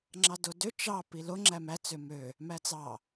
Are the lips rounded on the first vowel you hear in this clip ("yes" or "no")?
no